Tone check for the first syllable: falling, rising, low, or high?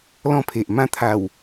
falling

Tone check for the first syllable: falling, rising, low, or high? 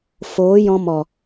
rising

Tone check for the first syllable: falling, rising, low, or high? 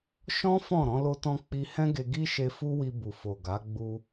high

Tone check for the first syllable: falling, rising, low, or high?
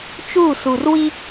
falling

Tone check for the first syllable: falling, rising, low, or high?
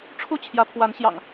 high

